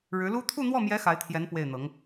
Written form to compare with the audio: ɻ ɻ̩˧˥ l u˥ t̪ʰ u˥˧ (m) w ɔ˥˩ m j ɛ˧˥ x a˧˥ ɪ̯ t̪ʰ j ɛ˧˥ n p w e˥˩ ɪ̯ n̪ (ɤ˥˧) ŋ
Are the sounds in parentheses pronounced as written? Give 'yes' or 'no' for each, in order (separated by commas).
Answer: no, no